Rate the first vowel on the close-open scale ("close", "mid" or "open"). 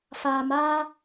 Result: open